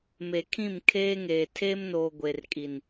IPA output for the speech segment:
m e˨ kʰ ĩ˦˨ m kʰ eː˦ ŋ eː˨ tʰ eː˦ m n oː˨ ɡʷ e˨ r kʼ i˨ n

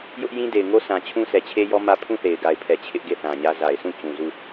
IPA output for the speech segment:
j ʊ˦ ʔ j ĩ˦ d e˨ ɪ̯ ŋ o˦ sʰ ã˨ t͡ɕʰ ũ˦ sʰ ɛ˨ t͡ɕʰ e˦ j ɔ˦ m ä˦ pʰ ũ˦˨ θ e˨ ɪ̯ ɡ a˨ ɪ̯ pʰ ɛ˨ t͡ɕʰ ɪ˦ ʔ ɡ e˦˨ θ ã˨ ɲ ä˦ z a˨ ɪ̯ sʰ ũ˦˨ t͡ɕ ũ˨ z u˦˨

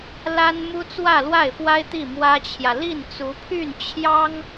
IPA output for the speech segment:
l a˥ n m u˥ t͡s w ä˥˧ l w a˥˩ ɪ̯ f w a˥ ɪ̯ t̪ i˥˩ m w ä˥ t͡ɕʰ j ä˨ l i˥˩ n t͡s u˧˥ pʰ y˥˩ n t͡ɕʰ j ɑ˥ ŋ

